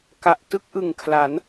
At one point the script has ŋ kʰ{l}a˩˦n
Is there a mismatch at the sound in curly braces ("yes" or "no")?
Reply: no